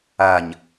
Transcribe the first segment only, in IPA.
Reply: a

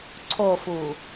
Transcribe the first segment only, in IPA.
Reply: ǀʰ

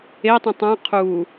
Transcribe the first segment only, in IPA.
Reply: e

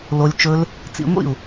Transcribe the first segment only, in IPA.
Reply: l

